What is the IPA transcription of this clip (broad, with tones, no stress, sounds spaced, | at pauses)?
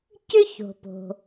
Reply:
c ʏ˥ ç o̤˩ p o̤˩